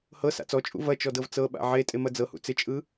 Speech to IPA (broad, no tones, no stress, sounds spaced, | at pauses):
h ɤ s a̰ t͡s ɔ t͡ʃʼ ṵ v ɐ t͡ʃ ɔ d ɤ v t͡s ɤ ɓ a̰ ʕ e tʼ e m ɐ d͡z ɤ h ṵ t͡s ɪ t͡ʃʼ ɯ